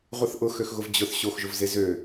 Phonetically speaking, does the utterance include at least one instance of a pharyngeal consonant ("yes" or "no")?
no